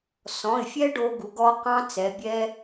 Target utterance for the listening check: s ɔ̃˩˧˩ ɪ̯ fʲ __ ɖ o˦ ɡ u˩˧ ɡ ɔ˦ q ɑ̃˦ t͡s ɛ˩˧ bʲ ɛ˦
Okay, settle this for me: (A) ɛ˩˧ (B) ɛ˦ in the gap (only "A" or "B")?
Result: B